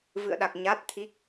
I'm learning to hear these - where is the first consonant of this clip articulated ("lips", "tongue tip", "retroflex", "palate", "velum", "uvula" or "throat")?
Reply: lips